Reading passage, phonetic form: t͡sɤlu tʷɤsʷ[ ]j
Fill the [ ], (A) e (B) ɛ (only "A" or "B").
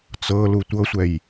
B